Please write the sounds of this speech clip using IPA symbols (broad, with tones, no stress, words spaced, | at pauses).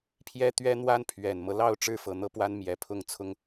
pʰjɛ˥t̪ɥɛ˥n̪wa˥n pʰɥɛ˨˩nmɤ˦lɑ˥˩ʊ̯ ʈ͡ʂɻ̩˥fɤ˨˩n̪ɤ˥˩pwa˥n mjɛ˧˥pʰʊ˥˩ŋ t͡sʰʊ˥ŋ